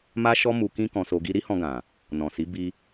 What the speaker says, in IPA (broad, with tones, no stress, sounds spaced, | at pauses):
m a˦ ʃ ɔ˦ m u˧ k ĩ˦ k ɔ̃˧ s o˧ ɡ i˧ ɾ i˦ h ɔ̃˧ ɡ ã˨ | n ɔ̃˨ s i˨˦ b i˧